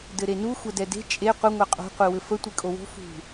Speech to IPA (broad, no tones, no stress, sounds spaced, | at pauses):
d ɘ ɾ e n u xʷ ɛ d ɛ d e̤ t͡ʃʼ e qʷ ɘ ŋʷ ɛ qʼ o̤ qʷ i w ɘ f ə tʷ i kʼ o w o̤ f ṳ